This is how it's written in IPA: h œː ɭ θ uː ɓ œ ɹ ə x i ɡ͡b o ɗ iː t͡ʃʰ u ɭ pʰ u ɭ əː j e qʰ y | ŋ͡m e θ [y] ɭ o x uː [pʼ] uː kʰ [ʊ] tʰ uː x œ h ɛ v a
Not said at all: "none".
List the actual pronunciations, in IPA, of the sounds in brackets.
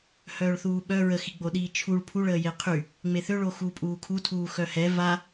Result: ø, pʼ, u

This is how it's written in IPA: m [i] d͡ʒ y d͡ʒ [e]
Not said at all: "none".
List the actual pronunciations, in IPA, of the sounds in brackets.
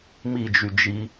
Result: i, i

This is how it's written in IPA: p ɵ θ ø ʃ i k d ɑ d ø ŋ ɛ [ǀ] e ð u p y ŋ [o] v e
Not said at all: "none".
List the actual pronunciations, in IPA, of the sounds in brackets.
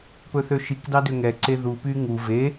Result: ǀ, u

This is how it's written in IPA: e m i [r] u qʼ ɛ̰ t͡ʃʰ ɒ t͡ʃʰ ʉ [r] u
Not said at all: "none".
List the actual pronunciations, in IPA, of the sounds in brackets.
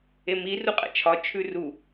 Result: r, r

